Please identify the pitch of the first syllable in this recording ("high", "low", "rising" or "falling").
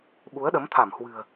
rising